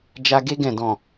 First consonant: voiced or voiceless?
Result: voiced